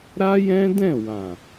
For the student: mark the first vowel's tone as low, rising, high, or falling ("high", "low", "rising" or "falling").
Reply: high